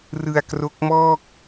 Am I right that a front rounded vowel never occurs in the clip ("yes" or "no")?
yes